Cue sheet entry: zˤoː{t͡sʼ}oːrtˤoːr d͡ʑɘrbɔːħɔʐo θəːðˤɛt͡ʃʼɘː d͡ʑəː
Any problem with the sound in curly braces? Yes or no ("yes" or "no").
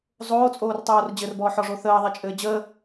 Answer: no